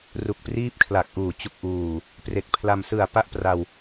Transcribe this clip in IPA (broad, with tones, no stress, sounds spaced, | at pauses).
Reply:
r u˨˩ k̚ p r iː˦˥ p̚ kʰ l a˨˩ k̚ ʔ uː˨˩ t͡ɕ u˨˩ k̚ ʔ uː˨˩ | p r e˨˩ k̚ pʰ l a˧ m s ɯ˨˩ a̯ p a˥˩ ʔ p r a˧ w